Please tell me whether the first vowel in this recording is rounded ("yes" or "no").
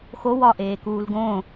yes